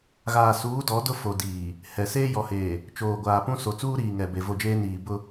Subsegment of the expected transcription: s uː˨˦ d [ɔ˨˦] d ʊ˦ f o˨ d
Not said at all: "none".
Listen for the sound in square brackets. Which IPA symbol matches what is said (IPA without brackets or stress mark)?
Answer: ɔ˨˦